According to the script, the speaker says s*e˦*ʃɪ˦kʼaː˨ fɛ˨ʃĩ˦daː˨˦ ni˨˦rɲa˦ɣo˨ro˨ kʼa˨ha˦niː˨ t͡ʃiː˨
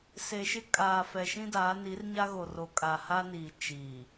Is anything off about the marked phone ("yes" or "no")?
yes